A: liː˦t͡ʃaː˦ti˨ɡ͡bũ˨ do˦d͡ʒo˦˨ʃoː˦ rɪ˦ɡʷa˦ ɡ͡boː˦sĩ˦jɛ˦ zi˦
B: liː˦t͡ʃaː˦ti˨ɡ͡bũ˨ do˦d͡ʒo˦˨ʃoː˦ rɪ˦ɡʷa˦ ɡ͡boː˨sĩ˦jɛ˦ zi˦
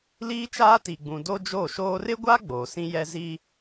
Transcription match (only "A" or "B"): B